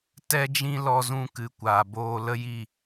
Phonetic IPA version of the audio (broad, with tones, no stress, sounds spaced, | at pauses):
t ɛ˦ d͡ʒ ĩ˦ l ɔ˧ z ũ˧ k ɨ˨ kʷ aː˨ b oː˧ l ə˦ j i˦˨